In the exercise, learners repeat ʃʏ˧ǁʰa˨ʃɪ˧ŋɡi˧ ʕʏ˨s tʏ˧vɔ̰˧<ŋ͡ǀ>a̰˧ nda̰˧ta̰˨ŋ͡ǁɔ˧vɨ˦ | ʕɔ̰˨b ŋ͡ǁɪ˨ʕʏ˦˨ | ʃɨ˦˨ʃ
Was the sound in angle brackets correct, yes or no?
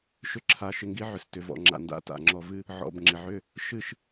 no